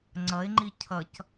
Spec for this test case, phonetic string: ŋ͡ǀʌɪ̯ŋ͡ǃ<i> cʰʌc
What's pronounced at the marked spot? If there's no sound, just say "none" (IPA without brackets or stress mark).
i